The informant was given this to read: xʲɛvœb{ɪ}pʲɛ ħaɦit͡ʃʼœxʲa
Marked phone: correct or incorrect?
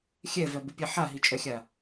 correct